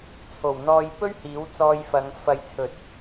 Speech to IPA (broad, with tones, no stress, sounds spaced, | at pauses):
t͡sʰ o˨˩ w n̪ ɔː˧ j p ɵ˥ ɥ h iː˨˥ w t͡s ɔː˧ j f ɐ˨˧ ŋ f ɐ˨ j t͡sʰ ɵ˨ t̚